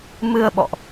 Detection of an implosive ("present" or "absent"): present